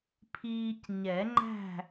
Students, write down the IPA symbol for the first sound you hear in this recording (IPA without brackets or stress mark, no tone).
pʰ